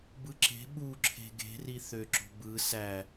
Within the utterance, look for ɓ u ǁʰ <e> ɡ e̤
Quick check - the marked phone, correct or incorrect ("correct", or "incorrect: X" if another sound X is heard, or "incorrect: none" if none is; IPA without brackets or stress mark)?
incorrect: e̤